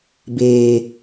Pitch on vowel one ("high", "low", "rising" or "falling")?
low